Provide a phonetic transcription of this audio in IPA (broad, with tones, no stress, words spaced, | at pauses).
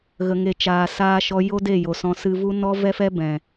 ɣə˨ŋe˨t͡ʃaː˨ saː˧ʃɔ˧ jo˦de˦˨jo˨sɔ̃˧ sɨ˧vu˦ nɔ˦vɛ˦fɛ˦ bɛ̃˨